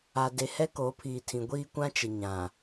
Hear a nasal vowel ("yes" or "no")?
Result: yes